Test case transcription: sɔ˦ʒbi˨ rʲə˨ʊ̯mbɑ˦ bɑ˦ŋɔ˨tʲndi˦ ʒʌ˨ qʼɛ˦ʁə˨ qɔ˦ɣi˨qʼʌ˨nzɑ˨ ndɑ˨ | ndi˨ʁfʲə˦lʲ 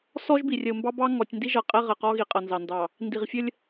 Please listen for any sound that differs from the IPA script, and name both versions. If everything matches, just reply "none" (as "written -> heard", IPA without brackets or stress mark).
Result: none